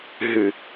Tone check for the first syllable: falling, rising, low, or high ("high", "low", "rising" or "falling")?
low